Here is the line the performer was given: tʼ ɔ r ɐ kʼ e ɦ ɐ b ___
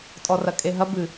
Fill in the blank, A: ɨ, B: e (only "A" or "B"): A